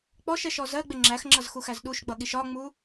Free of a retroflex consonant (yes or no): yes